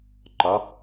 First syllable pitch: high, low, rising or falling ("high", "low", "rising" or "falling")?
rising